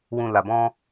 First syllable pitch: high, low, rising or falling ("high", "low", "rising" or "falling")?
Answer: low